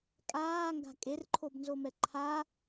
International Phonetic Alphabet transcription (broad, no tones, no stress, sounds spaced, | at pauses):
kʼ aː ŋ ɡ a̤ kʼ e r ǃʰ o b n z o m ɛ ǃʰ a